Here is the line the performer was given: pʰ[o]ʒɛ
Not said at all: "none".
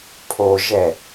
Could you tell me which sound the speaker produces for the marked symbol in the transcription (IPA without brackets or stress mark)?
o